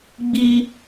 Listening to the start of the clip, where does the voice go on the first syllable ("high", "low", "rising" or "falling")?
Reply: high